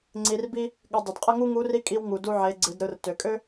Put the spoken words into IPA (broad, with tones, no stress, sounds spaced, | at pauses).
ŋ͡ǀ i˧ r b i˥ | ɠ ʏ˧ dˤ ɨ˩ d qʼ ə˥ ŋ u˥ ŋ u˧˥ r i˧˥ kʼ i˧ w ŋ u˩ d u˧ ʕ e˩˧ ɡ͡ǀ ɨ˩˧ d ɾ ɯ˩˧ r t ø˩ kʼ ø˥